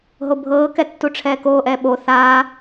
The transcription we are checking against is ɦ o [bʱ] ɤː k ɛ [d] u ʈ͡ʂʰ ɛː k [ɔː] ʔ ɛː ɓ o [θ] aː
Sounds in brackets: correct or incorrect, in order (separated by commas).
correct, incorrect, incorrect, correct